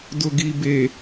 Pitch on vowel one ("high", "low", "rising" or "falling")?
low